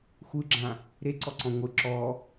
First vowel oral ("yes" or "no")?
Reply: yes